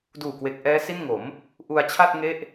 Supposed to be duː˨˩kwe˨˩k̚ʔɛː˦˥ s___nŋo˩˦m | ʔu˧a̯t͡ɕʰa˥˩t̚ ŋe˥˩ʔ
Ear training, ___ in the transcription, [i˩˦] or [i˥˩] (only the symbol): i˥˩